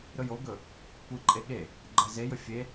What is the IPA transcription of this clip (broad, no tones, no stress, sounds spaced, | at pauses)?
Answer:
ɾ ɵ j o ɡ ɵ | kʷ ɨ ǃʼ e ɠ e | ɡ͡ǃ ɜ z e j ɵ fʲ e